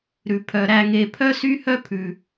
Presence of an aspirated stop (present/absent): present